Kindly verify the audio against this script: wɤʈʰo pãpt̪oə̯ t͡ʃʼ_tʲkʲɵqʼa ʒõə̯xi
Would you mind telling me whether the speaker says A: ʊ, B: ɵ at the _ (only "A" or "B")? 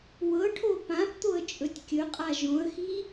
B